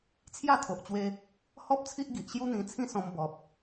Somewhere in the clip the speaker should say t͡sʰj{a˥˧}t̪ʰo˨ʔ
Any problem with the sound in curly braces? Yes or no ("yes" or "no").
no